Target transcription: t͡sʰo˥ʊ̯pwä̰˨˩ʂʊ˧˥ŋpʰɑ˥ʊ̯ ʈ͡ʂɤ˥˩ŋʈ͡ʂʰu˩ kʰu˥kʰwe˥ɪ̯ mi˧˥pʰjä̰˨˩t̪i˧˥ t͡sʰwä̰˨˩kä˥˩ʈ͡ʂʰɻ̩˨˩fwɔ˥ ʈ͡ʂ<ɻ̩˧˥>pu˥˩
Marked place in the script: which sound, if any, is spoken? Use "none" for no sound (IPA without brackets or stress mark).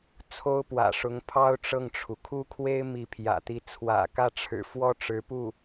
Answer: ɻ̩˧˥